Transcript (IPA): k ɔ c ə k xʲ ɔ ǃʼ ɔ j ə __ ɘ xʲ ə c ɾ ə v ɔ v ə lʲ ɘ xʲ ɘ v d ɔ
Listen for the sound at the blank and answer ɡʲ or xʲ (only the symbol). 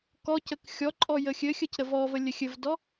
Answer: xʲ